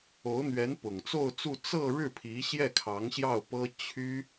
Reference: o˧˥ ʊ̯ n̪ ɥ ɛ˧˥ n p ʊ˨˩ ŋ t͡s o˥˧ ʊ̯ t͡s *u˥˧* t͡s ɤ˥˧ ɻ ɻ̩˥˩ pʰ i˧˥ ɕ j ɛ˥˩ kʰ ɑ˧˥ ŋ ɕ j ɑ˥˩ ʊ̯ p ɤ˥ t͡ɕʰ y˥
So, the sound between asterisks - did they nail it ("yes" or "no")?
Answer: yes